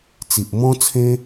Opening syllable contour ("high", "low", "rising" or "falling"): low